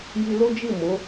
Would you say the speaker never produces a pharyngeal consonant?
yes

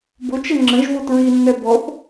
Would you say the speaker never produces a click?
no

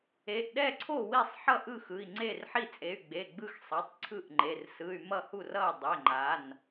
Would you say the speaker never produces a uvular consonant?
yes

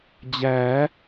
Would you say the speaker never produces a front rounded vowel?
yes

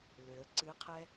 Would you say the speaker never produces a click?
no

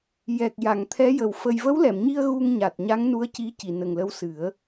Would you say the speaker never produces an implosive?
yes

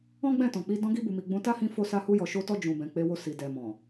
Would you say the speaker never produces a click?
yes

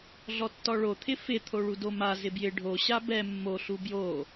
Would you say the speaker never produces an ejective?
yes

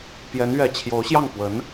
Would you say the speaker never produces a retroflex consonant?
yes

